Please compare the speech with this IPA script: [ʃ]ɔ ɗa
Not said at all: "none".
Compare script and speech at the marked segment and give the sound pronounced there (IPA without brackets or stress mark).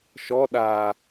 ʃ